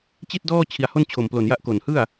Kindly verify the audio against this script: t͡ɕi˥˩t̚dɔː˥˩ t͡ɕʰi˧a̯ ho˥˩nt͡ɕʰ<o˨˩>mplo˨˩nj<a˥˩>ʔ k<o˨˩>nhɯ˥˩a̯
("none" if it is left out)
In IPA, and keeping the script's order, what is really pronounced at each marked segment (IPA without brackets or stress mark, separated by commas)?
o˨˩, a˦˥, o˨˩